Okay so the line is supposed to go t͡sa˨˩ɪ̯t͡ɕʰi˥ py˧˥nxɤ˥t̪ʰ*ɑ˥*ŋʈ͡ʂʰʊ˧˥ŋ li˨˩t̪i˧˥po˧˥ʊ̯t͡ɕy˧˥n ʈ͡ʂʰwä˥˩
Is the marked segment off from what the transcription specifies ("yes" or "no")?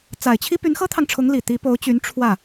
yes